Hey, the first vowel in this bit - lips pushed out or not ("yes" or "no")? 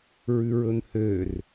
yes